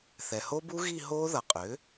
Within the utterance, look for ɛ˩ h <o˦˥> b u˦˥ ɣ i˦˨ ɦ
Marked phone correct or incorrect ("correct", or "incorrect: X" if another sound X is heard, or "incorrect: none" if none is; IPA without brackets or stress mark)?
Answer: correct